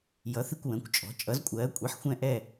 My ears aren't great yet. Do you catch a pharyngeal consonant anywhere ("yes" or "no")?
yes